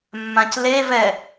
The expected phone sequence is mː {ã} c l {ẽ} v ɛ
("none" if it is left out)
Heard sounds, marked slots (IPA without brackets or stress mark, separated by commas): ã, e